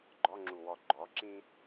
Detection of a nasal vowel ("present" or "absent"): present